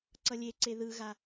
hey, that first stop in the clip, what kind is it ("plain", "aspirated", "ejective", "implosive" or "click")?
click